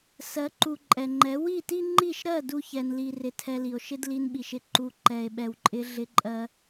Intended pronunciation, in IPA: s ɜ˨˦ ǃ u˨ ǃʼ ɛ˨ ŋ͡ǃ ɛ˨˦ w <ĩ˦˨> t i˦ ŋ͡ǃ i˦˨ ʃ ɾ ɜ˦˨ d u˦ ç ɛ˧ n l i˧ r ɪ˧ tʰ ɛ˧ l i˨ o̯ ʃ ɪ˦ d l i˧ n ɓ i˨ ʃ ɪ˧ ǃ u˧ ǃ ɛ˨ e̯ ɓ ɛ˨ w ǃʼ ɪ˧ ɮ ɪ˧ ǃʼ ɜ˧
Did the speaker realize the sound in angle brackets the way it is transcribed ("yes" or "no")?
no